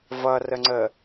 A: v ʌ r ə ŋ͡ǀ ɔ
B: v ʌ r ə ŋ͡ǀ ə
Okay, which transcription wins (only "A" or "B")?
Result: B